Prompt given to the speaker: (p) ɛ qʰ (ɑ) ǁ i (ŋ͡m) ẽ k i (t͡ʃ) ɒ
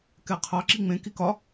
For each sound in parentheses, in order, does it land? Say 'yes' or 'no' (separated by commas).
no, yes, yes, no